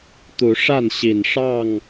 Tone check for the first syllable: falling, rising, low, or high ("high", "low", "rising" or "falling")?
rising